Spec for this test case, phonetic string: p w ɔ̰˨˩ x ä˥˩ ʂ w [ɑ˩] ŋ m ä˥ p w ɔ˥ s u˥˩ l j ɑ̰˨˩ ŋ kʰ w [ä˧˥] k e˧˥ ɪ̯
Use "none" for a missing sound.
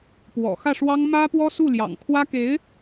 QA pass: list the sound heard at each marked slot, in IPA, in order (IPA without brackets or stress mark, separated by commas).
ɑ˥, ä˥